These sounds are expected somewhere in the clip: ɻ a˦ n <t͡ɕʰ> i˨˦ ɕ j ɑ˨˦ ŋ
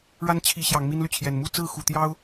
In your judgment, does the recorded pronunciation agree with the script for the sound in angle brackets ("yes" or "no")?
yes